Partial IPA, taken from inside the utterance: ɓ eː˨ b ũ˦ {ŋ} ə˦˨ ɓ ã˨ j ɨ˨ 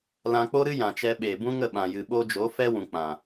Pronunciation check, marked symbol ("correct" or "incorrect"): correct